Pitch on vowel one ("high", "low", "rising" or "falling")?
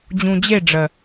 low